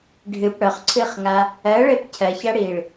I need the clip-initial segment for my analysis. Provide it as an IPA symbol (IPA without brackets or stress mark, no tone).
ɖʱ